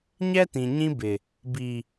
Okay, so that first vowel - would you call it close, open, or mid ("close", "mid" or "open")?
mid